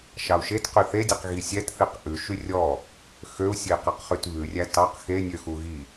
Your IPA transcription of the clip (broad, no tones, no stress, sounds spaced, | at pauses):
ʃ ɑ u̯ ʃ e t q y θ e dʲ ɛ q ɣ i sʲ ɛ t θ i q ʔ ʉ ʃ y rʲ ɔ | x ø u̯ sʲ e i̯ q ɑ q χ y t β ʉ rʲ æ t ɑ q x e nʲ ø x u ɣ i